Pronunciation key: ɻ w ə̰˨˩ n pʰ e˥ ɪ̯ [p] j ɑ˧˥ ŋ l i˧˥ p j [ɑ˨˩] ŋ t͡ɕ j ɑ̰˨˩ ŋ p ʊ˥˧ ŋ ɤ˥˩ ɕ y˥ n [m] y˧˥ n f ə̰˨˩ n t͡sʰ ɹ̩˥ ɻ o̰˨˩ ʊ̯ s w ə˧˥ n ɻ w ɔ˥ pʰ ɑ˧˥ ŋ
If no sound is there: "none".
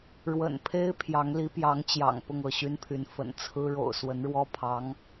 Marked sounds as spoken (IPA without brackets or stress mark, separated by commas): pʰ, ɑ˧˥, pʰ